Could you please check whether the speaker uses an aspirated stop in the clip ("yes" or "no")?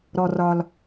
no